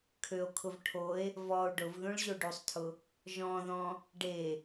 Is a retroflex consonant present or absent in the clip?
present